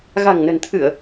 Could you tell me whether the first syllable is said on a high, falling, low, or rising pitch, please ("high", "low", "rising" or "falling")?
low